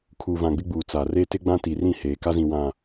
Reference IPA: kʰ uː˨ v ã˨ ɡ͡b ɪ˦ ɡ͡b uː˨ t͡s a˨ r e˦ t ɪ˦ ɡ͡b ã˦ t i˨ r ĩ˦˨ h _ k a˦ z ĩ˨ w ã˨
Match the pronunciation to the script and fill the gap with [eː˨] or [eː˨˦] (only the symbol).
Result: eː˨